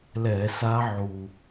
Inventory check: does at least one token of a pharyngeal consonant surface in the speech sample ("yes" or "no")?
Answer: yes